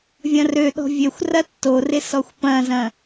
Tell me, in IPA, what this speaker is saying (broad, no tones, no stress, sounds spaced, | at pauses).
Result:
vʲ ɐ̃ r ø ɗ ɔ̤ vʲ ø xʷ r ɐ tː o r ɪ s ɔ xʷ p ɐ̃ z ɐ̃